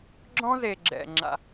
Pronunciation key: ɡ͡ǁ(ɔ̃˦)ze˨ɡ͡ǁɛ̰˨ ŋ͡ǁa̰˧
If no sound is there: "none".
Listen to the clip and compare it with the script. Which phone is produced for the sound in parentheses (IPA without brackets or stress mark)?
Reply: ɔ̃˦